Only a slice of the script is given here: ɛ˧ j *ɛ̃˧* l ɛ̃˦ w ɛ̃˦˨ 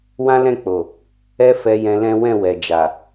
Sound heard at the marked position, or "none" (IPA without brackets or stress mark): ɛ̃˧